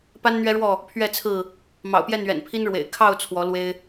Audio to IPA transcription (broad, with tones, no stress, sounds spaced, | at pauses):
p a˦ n n̪ ɥ ɛ˦ ɻ w ɔ˥˨ | pʰ ɥ ɛ˥˨ t͡sʰ ɹ̩˥˨ | m ɑ̰˨˩ ʊ̯ p j ɛ˥˨ n ɥ ɛ̰˨˩ n pʰ i˦ n ɻ w ḛ˨˩ ɪ̯ kʰ ɑ˥˨ ʊ̯ t͡sʰ w ɔ˨˦ l w e˦ ɪ̯